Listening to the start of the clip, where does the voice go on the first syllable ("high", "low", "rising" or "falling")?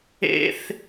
high